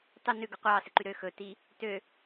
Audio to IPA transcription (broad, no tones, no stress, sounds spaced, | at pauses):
tˤ ʉ n ʉ ɡ ɵ qʷ ɑː s ɛ ǃ y ɾ ø x ɵ t i | t ø